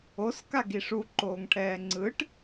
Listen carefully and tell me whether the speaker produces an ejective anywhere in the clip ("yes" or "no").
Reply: no